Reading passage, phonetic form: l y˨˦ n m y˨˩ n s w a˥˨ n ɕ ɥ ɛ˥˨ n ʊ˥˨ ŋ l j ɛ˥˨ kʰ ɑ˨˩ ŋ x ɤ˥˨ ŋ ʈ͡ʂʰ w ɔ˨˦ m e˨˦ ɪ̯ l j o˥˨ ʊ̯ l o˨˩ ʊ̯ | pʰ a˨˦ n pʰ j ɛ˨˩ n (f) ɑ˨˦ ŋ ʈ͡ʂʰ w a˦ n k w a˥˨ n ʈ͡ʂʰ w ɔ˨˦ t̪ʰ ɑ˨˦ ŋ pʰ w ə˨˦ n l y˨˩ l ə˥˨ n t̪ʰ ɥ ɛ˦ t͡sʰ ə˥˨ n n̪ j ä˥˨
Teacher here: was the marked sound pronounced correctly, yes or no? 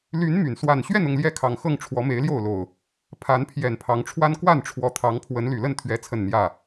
no